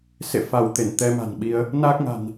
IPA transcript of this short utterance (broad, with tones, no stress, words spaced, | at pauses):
sḛ˧˨fa˧˩w t̪e˧˩nt̪ɛ˨˦ma̤˨˩nɓi˨˦ə̯ | naː˦˥k̚ŋa̤˨˩n